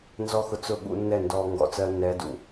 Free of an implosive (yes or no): no